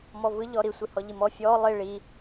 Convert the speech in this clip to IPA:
m ɔ v ɯ ʎ ɔ ɾ i sʷ i h ɔ ʎ i m ɔ fʲ ɔ lˠ i ɭ i

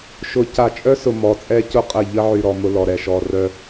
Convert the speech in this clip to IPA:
ʃ ʊ˨ c a˨ t͡ʃʼ œ˦ s ʊ˨ m ɔ˨ t͡sʼ ɛ˦ c ʊ˦˨ qʼ ə˦˨ ʎ ə˦ ʕ y˨ ɾ ɔ˨ m ʊ˦ l ɔ˨ ɾ ɛ˨ ʃ ɔ˨ r œ˦

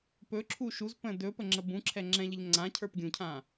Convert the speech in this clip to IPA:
p ɵ ǁʰ u ʃ u z p ə̃ d ɵ p ə ŋ͡ǁ ə b ũ ǁʰ ɛ ŋ͡ǁ ɛ̃ ʎ ə ʎ ŋ͡ǀ ã cʰ ə˞ p ɡʲ ũ cʰ ã

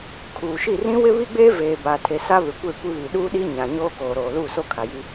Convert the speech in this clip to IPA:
kʰ uː˨ ʃ i˦˨ r ĩ˦ w ɪ˦ β i˦ ɡ͡b eː˦ v eː˨ b aː˨ tʰ e˨ s a˦ β ɪ˨ kʷ e˦˨ kʷ i˦ β i˨ ɗ uː˦ ɗ i˦ ɲ ã˨ ɲ oː˦ k oː˨ ɾ oː˨ l uː˦˨ s o˦ kʰ a˨ j i˦

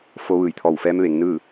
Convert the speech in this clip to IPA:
f o˧ ʋ ɯː˧˩ j t̪ʰ ɔː˧˩ w f ɛː˧˥ m ʋ e˩˧ ŋ n ɯː˥˨

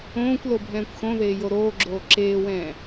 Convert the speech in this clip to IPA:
õː kʷ l o bʱ ɛ̃ː kʷ x õ ð eː j o ɾ oː ɡ͡ǁ oː ǁ eː w ɛ̃ː

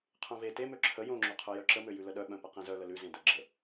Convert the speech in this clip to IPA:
qʰ œ̃ v e t e m ø ǁʰ ə j õ ŋ͡ǁ o qʰ œ j œ ǁ ə m ø j ʉ l ə ɗ œ ɓ œ̃ p ə q ẽ z œ l ə l ʉ z ẽ d ə ɡ͡ǁ ə

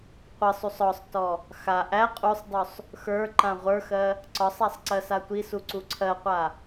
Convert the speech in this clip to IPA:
qʷ ə sˤ u sˤ ɔ sˤ t ɔ | x a ʔ æ qʼ u sˤ dˤ u sˤ | x ə˞ ǃ ã ʁʷ ə˞ x ɜ | ǀ ɒ sˤ æ sˤ ǀ ɜ s a tʷ i s u ǀ u ǀʰ ɜ qʷ a

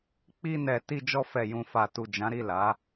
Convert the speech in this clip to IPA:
k͡p i˧ n ɛ˨ t i˧ d͡ʒ ɔ˧ f ɛ˨ j ũ˨ f a˨ t u˨ d͡ʒ ã˨˦ ɾ i˦˨ l a˨˦

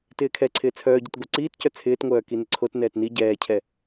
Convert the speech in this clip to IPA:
t ɪː kʰ ɛ ǀʰ ɪː t͡sʰ œː ɟ ɪ t ɡʷ ɛ ǀ iː t c œ t͡sʰ ɪː t ŋʷ œː k i n ɪ ǀʰ o t n ɛː t n i ɟ ɛː cʰ ɛ

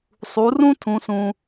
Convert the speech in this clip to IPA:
sˤ u˩˧ r ũ˥ tʰ ũ˩˧ s ũ˩

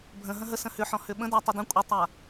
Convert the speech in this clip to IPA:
bʱ ə̃ ɦ ə̃ ɦ ə s ə̃ h ʏ ħ ɔ̃ h ʏ ɓ ə̃ d a tˤ ʏ d ə̃ kʷʼ ə tˤ a

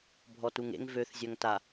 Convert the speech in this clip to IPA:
bʱ ɔ t u ŋ ḛ ŋ v ø θ zʲ œ ŋ t a

